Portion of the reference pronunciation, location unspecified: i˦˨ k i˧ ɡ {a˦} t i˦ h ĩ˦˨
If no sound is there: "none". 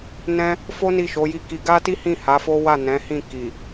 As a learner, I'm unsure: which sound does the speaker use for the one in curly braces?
a˦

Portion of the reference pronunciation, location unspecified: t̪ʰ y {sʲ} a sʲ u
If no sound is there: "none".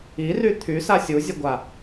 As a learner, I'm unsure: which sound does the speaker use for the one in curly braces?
s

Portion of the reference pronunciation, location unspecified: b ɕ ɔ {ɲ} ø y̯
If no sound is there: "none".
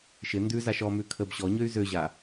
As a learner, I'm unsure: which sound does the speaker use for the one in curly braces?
ɲ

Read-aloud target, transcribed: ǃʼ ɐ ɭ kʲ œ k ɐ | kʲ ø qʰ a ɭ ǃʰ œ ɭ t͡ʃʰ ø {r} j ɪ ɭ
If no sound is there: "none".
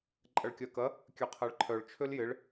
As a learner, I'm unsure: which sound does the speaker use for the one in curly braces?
l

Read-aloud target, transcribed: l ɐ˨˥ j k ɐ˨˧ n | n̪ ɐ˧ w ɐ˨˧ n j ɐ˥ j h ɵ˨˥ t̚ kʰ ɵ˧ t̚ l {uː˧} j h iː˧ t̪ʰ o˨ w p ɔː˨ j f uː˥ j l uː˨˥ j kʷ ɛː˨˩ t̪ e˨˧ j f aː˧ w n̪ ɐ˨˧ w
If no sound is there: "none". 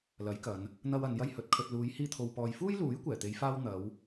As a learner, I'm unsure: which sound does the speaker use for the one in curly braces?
uː˨˧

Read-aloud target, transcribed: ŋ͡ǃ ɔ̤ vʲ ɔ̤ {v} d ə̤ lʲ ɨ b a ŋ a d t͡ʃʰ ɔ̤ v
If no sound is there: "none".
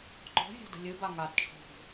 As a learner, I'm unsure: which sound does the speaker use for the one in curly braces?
none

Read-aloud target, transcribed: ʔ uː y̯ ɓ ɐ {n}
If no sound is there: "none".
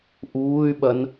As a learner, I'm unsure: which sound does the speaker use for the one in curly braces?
n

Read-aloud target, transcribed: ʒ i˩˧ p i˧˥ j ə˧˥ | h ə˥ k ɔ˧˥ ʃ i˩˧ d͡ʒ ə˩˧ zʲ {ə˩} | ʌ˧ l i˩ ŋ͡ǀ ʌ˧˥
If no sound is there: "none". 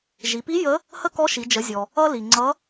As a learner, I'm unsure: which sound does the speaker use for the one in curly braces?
ɔ˩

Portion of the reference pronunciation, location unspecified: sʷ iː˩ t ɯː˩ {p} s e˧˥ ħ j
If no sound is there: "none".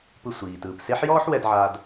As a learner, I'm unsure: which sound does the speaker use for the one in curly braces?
p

